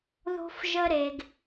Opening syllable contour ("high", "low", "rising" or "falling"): high